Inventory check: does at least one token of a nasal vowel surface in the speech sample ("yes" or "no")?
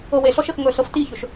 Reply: no